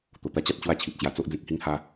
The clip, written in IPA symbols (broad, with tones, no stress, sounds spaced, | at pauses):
t̪ o˨˩ t̪ a˧ t͡ɕ a˦ t̚ t͡ɕ w a˥˧ t͡ɕʰ i˨ t̚ t͡ɕ j a˧ t͡s o˦ ʔ d͡z ẽ˦ k̚ h i˦ ŋ h a˦